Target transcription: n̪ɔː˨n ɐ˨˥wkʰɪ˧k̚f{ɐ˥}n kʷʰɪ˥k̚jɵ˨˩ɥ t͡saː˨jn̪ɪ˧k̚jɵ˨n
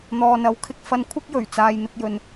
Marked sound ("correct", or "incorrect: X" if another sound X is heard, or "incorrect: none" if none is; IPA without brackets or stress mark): incorrect: ɐ˧